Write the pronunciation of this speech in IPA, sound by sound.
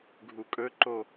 ɡʱ u kʼ ɵ ǃ o

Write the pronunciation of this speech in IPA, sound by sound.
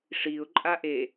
ʂ i ʊ̯ ǃʼ a ʔ e

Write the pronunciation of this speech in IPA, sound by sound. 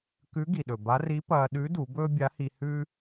k ʉ˧˥ ɡ i˩ ɗ ɵ˩ b a˧˥ r i˧˥ p ɐː˧ ɗ ʉ˧˥ d u˩˧ b ɵː˥ bʲ a˧˥ h i˧ h ʉ˥

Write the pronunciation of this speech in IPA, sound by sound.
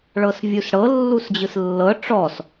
ɭ ɤ s vʲ u s ɽ ɤ lː u s d͡ʑ ɯ s lː ɤ ʈ͡ʂ ɔ s

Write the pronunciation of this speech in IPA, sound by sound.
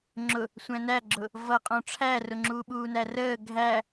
ŋ͡ǁ ʊ | sʷ æ̃ n æ ɡ͡ǁ ʊ | v ʌ qʼ ɔ̃ ʈ͡ʂʰ æ r ʊ ŋ͡ǁ uː ɓ uː n æ r əː ɡʱ æ

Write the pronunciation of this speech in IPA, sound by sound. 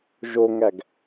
ʒ o ŋ æ ɡ

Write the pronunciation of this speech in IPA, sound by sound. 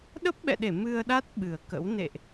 ɗ ə˦˥ p̚ ɓ ɛ̰˧˨ ɗ e˧˩ m ɨ˧ ə̯ ɗ a˦˥ t̚ ɓ ɨ˨˩ ə̯ k ə̰˧˥ w n ḛ˧˨ ʔ

